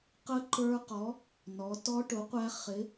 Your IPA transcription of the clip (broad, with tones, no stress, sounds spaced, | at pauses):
q ə˦˥ ǃ ə˞˦˥ q ɔ˨˥ | n ɔ˩˧ t ɔ˦˥ ʈ ʊ˨˥ qʷ æ˦˥ χ ɪ˨˥